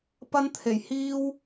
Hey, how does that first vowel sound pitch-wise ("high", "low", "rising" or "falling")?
high